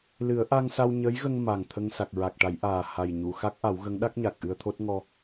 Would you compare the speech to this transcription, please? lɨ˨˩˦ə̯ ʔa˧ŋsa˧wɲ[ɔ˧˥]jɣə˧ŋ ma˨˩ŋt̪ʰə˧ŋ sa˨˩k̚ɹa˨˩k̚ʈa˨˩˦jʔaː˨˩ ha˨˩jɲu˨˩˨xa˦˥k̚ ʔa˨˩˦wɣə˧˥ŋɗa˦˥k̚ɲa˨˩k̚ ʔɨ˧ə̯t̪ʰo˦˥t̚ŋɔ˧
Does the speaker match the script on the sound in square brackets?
no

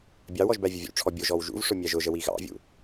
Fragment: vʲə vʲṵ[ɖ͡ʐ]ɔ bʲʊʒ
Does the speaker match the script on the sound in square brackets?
no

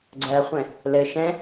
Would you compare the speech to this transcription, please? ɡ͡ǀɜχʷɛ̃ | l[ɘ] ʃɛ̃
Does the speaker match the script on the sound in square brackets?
yes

